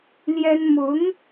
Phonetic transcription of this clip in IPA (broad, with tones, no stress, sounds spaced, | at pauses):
l j ɛ˥ n m ʊ˧˥ ŋ